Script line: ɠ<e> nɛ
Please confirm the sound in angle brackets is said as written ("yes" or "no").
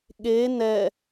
yes